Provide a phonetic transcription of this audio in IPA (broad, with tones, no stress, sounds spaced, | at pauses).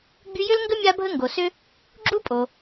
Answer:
ɡ͡b y˦ j ʏ˥ l ŋ ɡ ə˥ mʲ a˦ bʱ ə˦ ŋ ɡ o˩ s ʏ˦ | ɡ͡ǁ u˥ pʼ o˩